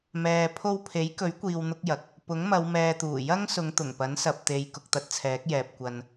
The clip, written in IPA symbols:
mɛː˨ pʰo˧wpʰe˨˥jkɵ˨˥ɥ kʷiː˧wn̪ʊ˥k̚jɐ˨k̚ | pʊ˨˥ŋmɐ˨˧w mɛː˧t̪uː˨˩ jɐ˥ŋ sʊ˨˧ŋt̪ʊ˨˩ŋpɐ˨˥nsɐ˨p̚ t̪e˨j kʊ˨k̚t̪ɐ˧t̚t͡sʰɛː˨˥k̚jɛː˨p̚ kʷɐ˧n

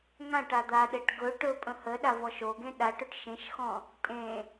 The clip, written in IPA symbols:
ŋãʈ ad̪aɗeʈ ɡɵ ʈɵ pʼə̃həɗa vɔʃoɡẽ ɗaʈɵʈ ʃẽʃxɔ̃ | tʼẽ

